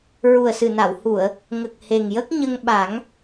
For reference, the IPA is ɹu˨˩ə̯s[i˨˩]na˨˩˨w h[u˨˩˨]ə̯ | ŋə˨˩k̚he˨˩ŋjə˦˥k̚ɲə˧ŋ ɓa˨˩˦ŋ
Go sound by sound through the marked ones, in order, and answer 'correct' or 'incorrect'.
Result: incorrect: ɨ˨˩, correct

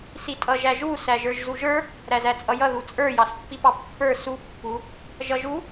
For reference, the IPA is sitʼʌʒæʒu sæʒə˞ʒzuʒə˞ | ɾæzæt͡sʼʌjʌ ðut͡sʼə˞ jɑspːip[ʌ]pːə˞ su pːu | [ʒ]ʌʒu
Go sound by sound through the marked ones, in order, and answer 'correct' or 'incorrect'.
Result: incorrect: ɑ, correct

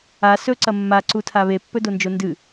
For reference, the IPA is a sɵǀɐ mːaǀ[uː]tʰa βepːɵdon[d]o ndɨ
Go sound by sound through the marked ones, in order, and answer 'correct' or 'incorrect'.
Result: incorrect: u, incorrect: d͡ʒ

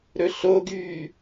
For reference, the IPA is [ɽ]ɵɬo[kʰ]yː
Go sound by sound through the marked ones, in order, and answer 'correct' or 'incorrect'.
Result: incorrect: ɾ, incorrect: ɡ

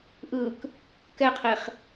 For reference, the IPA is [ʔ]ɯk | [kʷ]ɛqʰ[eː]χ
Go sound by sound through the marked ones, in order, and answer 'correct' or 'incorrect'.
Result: correct, incorrect: k, incorrect: e

